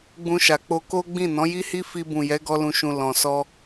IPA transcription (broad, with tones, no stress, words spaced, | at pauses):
ɡ͡bũ˧ʃa˨k͡po˧ ko˦ɡ͡bĩ˦˨ nɔ̃˨˦ji˦hi˦ fi˧bũ˨ jɛ˨˦ɡɔ˧lũ˨ʃũ˨ lɔ̃˨sɔ˧